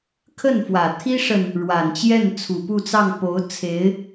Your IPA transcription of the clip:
kʰ ə˥˩ n f w ä˨˩ t̪ʰ i˥ ʂ ə˨ n | ɻ w a˨˩ n t͡ɕ j ɛ˥˩ n t͡sʰ u˨˩ p u˥˧ t͡s ɑ˥˩ ŋ p o˧˥ ʊ̯ t͡sʰ e˧˥ ɪ̯

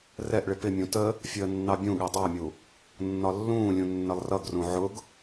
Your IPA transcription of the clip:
r ɛ ʔ ɭ ɪ p ɪ mʲ ũ t ə | fʲ əː nː ɑ bʲ ũ ɠ ɛ dˤ ɑ mʲ u | nː ɒ lː ũː lʲ ũ nː ə lˠ r ʌ ɡ r ũ ʕ ʊ ɡ

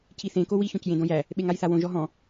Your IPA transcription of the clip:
cʰ i θ ẽ k o w i ç õ c j ẽ d õ j æ | ɓ e ŋ a j θ a w õ ʒ ɔ ɦ ɔ̃

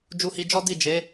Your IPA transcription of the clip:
d͡ʒ u˧ h i˧ d͡ʒ ɔ˦ d i˦˨ d͡ʒ e˨˦

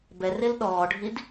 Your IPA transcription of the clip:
b ɛ r e l ɗ ɔː ɖʱ i d

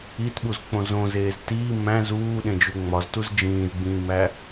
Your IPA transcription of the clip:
i t ɓ u z k͡p õ z õ z eː z t iː m æ̃ z uː ɗ ẽ d͡ʒ u ŋ͡m ɒ z t u z d͡ʒ ĩː z ɡ͡b ĩː m æ

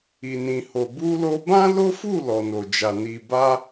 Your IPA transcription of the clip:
i˨ n ĩ˨ h o˨ b u˧ l o˧ b ã˦ l o˦ f u˦˨ l ɔ˨ n o˨ d͡ʒ a˨ n i˨ b a˧

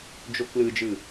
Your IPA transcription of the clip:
d͡ʒ o k l ɯ d͡ʒ ɯ

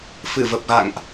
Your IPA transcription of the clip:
f ɨ˧˩ v ə˨˩ p̚ ɣ a̰˧˨ ŋ ʔ

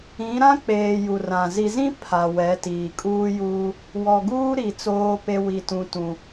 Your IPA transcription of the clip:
ĩ˨˦ ɾ ã˦ k͡p eː˨ j u˨ r ã˨ z i˨ z ĩ˦ pʰ a˨ w ɛ˨˦ t iː˨ kʼ uː˦ j uː˦ | w ɔ˨ ɡ uː˦ ɾ i˨ t͡s oː˦ p e˦ w i˦ t ũ˦ t ũ˦

